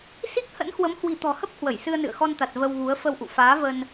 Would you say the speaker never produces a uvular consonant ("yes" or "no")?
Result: yes